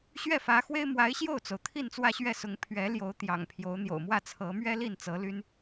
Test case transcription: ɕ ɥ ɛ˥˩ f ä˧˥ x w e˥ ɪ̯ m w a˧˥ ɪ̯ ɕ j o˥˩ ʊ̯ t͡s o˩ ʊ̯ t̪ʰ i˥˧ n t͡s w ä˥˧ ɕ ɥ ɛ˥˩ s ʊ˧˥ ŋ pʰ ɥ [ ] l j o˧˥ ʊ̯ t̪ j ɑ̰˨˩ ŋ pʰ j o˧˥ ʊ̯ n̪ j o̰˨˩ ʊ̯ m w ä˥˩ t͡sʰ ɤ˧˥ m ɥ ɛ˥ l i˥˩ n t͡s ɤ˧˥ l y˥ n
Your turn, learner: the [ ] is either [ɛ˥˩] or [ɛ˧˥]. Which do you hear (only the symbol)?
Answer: ɛ˧˥